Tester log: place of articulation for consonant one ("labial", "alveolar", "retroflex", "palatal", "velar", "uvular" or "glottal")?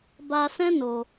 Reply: labial